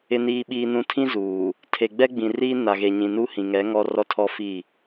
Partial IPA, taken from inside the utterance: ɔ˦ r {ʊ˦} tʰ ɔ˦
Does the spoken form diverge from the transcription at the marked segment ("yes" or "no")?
yes